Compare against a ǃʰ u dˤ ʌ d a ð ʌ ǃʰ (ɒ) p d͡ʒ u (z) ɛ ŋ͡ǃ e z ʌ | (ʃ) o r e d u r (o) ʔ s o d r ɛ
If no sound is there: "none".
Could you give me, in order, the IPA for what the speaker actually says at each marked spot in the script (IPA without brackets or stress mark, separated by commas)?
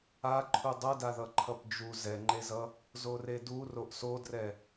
ʌ, z, z, o